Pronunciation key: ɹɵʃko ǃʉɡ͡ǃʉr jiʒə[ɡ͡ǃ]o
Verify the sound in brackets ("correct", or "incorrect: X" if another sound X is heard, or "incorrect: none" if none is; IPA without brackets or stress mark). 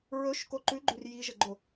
correct